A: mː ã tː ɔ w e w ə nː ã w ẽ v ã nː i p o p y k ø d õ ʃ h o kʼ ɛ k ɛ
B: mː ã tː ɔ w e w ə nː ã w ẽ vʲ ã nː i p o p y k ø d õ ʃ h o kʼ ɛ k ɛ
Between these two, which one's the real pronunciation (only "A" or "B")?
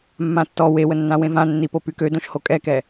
A